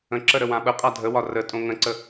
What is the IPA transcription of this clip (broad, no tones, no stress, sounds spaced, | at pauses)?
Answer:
ə̃ ǁ ə ɾ ə w ã ɓ ə qʼ a dʱ ə w ɒ r ə tʼ õ ŋ ə̃ ǀ ə